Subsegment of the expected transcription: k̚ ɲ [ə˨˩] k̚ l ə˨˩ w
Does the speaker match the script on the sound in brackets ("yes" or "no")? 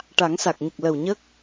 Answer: yes